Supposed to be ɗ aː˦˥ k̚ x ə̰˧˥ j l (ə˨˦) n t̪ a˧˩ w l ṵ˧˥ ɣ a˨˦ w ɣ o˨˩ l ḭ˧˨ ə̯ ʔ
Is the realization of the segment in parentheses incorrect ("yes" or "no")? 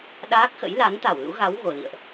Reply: yes